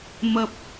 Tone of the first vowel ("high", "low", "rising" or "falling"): low